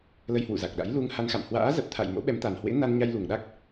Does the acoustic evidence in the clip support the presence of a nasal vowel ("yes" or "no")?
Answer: no